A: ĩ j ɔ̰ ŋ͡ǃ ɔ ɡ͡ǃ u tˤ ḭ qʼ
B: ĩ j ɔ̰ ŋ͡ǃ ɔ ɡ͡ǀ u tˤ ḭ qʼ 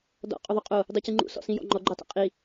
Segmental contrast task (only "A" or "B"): A